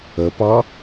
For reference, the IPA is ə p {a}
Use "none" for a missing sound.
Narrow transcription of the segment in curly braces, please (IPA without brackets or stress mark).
ɑ